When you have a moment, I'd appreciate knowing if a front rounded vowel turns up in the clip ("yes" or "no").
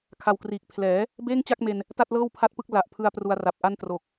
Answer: no